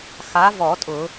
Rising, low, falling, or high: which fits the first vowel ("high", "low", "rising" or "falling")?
rising